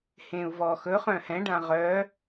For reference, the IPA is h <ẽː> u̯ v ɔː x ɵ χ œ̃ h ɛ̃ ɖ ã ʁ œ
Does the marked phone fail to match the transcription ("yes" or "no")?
no